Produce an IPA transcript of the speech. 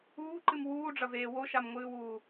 uː ǃ ɨ m w uː ɖ͡ʐ ɐ v eː w o ʃ a m ŋʷ ɨː w uː

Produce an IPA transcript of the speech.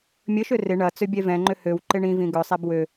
mʲ ə ʃ ø r ɪ ɳ ɐ t͡s ø bʲ ɛ v ɛ̃ ŋ͡ǃ ʏ h ø w ǃ ɪ ɳ ĩ v ĩ ɡ œ sˤ ɛ b w ø

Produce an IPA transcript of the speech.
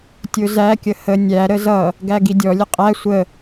tʲ ʊ z æ kʲ ə h ə nʲ æ ɾ ə z ʌ | ɡ æ ɡ i dʲ ɔ lʲ ə qʼ æ sʷ ə

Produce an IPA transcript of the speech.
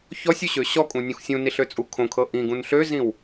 ç ɔ sʲ u ɕ ø ɕ ɔ kʼ ũ nʲ ũ x sʲ ũ n i ɬ ø t͡sʼ u kʰ õ kʰ ɤ ʔ ĩ ɡ ũ n ɬ ø z ĩ w

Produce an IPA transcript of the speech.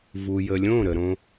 v u˨ j ə˨ lʲ õ˦˨ ɾ ə˨ ɾ õ˧

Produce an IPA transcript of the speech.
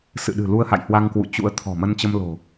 s ɨ̰˧˨ ɗ ɨ̤˨˩ l u˧ ə̯ h a̰˧˨ j h w a˧ ŋ k w ṵ˧˨ t͡ɕ ṵ˧˥ ə̯ t̪ʰ ɔ̤˨˩ m ə˧ n t͡ɕ ə˧ m l o̤˨˩

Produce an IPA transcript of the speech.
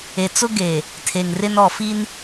e˨ t͡s ʊ˦ ɡ e˨ | tʰ e˨ ŋ r ɪ˦ n ɔ˨ f i˦ n

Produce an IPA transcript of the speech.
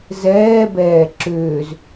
z ɛː b ɛː ǁ ʏː z

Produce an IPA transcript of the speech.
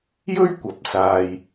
j ɵ˥ ɥ kʷ ɐ˨˥ p̚ s aː˨ j

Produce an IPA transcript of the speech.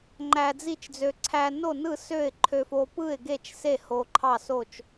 ŋ͡ǃ æ˧ d͡z i˥˨ t͡ʃ d͡z ø˧ ǀʰ æ˧ n o˥˨ n ɯ˥˨ s ø˥˨ ɪ̯ ǃʰ ø˧ f o˧ p ɯ˥˨ ɪ̯ ɡ e˥˨ t͡ʃ s e˥˨ h o˧ ǃʰ ɑ˥˨ s o˥˨ t͡ʃ

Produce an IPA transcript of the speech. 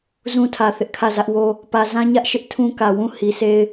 z ũ˦ tʰ ä˨ θ ɪ˦ ʔ kʰ ä˦˨ z ä˦ ʔ w o˦ | p ä˨ z ã˦ ɲ ä˦ ʔ ʃ ɪ˦ ʔ tʰ ũ˦ k ä˨ w ũ˦˨ h i˨ sʰ e˦ ɪ̯

